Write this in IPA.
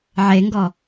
ʕeŋɡɔ

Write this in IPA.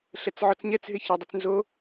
ɬɛt͡sʕɔt͡sɲɛt͡s ɦɪçɛdˤut͡snzo

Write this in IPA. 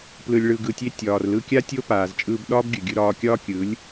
plɯ˨lʲɭɯ˨ɡɯ˨tʲe˧ tʲɒː˨rlɯ˧kʲa˦ tʲo˦paː˨z t͡ʃʼɯː˧bɗɒː˦bɡʲɯ˨ɡʲɯ˧ ɾɒː˧kʲɒː˦kʲɯ˨˦lʲ

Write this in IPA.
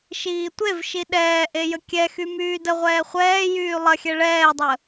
ʃiːtʷevʃi ɗɛːʔe jəkʲɛxy myːdəʁʷɛː χʷɛːjyː lˠɐxʲɛ ɭɛːdˤə

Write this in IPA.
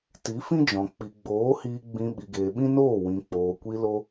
ti˨˦fĩ˦d͡ʒɔ̃˨ k͡pi˨ɡ͡boː˨˦hiː˧ ɡ͡bĩ˧ ɓi˨ɡeː˨ɓĩ˦noː˦˨ wĩ˨k͡poː˨kʷi˧lo˧

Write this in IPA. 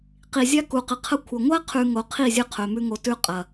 qi˨zʲa˦ku˨qɨ˨ qʰɐ˧kʷʰɐ˨ ŋʷa˦qʰʉ˨ ŋo˨ qʰi˦˨zʲɨ˧ qʰɵ˨mʉ˦ŋo˧tʉ˦ qʼɐ˨

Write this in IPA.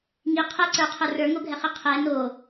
ŋiqʰɛǀə˞qʰə˞ rə˞ŋoɡʱɛχi qʰɛ no

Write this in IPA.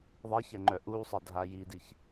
ðˤɛçɛ ŋ͡ǃœʔusˤə dʱajidiç

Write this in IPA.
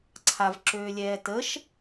ǀʰavǁøːlʲɛː təʃ

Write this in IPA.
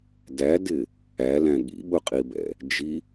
dædɪ | ælæ̃ ɠḭɓʊqʼibɛ̰ | d͡ʒi

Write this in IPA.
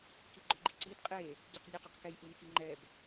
kiɡ͡ǃɵɡ͡ǃiǀid qʼe | ɟeqnʲuqɵqkɛj ʔunkiŋ͡ǃɛb

